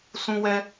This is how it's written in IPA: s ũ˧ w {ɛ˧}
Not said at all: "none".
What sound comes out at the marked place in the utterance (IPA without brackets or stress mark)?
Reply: ɛ˧